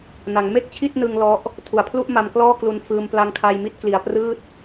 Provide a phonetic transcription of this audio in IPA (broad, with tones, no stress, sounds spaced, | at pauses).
n a˩˦ ŋ m e˥˩ k̚ t͡ɕʰ i˥˩ t̚ n ɯ˧ ŋ l ɔ˦˥ ʔ | tʰ u˨˩ a̯ pʰ l u˥˩ ʔ m a˧ m k l ɔː˥˩ k l u˧ n f ɯː˧ m p l a˧ ŋ kʰ a˧ j m i˥˩ t̚ k l i˧ a̯ p r ɯː˥˩ t̚